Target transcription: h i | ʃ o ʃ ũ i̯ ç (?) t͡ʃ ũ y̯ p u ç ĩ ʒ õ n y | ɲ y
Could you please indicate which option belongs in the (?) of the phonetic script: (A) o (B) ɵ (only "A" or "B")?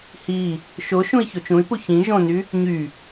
A